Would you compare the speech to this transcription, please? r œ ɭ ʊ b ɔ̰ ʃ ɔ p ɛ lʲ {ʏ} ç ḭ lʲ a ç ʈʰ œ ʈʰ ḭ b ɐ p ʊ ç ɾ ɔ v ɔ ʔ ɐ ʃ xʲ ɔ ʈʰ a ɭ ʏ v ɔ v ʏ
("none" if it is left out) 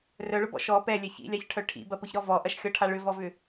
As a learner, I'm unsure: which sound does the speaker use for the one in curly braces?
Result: ɛ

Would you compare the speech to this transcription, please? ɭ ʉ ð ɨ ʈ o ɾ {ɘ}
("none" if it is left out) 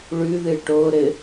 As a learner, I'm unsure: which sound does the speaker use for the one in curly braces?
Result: ɘ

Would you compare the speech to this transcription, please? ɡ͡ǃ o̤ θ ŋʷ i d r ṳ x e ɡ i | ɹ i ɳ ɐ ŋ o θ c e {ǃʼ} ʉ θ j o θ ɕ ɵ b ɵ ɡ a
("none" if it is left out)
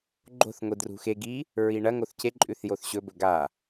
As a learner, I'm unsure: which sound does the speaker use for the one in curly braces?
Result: ǃʼ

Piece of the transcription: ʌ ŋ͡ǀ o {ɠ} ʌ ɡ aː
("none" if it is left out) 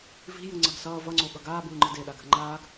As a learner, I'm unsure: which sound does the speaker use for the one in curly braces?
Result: ɠ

